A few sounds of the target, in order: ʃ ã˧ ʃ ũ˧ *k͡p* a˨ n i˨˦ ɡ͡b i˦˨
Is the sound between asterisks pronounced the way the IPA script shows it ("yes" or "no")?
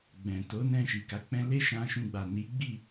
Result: no